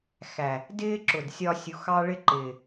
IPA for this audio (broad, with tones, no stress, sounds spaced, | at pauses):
x æ˨ | d ɪː˦ ǁ ʊ˨ d sʲ ɒ˧ sʲ u˨˦ x ɑ˦ ɭ ɪ˦ ǃ ɪː˨